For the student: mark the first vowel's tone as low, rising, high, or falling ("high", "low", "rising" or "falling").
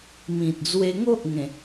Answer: low